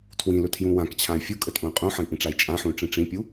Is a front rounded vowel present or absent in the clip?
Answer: present